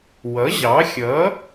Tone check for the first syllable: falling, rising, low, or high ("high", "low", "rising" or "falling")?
rising